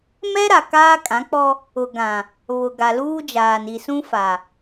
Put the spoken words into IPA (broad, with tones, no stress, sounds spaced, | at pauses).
m ɛ˦ ɾ a˨ k aː˦ kʼ ã˨˦ k͡p ɔ˦ | ʊ˨ ɡ ã˨ | β ʊ˨ ɡ a˨ l uː˦ d͡ʒ aː˨ n i˨ s ũ˦ f a˨